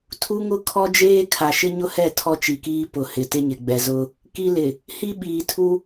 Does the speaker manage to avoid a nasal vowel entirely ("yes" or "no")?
yes